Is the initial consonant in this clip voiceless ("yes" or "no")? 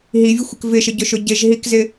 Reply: no